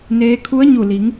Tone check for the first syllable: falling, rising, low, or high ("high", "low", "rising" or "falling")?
rising